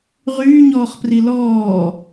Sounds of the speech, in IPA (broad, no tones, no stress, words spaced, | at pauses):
ʁyːɲɔːχpri lɔː